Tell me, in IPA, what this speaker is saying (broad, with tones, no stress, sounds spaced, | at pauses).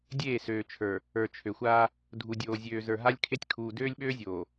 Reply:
dʲ eː˦˨ s øː˨ t͡ʃʰ ə˞˨ | ə˞˨ t͡ʃʰ ø˨ xʷ aː˦ | dʱ u˨ dʲ oː˨ zʲ øː˨ z ə˞˨ ɦ a˦ lʲ kʰ e˦ tʲ kʰ uː˨ d øː˦ lʲ ɓ øː˦ zʲ oː˨